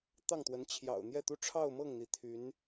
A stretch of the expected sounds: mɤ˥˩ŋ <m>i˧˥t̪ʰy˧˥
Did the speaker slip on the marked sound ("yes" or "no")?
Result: yes